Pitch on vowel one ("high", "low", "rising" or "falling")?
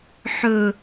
low